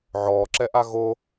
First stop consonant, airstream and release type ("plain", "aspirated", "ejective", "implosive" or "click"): click